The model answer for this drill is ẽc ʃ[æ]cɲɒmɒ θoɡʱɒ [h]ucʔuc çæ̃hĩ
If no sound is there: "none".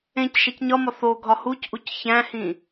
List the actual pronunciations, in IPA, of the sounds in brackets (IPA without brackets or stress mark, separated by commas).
æ, h